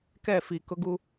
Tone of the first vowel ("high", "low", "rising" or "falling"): falling